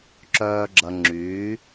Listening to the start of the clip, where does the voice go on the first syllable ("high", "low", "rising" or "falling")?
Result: low